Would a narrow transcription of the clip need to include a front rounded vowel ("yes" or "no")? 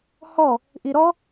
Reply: no